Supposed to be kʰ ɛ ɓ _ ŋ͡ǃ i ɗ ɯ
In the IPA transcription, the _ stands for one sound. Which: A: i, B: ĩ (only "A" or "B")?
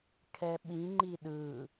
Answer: B